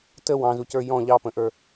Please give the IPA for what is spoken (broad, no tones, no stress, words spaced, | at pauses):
təw ɑ̃zucə˞ jɔ̃ ʎɑpə̃ʔə˞